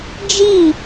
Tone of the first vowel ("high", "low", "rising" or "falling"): falling